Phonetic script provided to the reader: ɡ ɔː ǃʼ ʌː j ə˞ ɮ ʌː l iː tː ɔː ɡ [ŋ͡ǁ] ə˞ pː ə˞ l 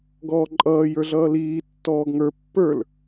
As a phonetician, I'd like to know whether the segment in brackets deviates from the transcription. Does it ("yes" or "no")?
yes